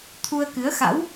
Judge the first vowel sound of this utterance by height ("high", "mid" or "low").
high